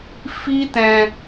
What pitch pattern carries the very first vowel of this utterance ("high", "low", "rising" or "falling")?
high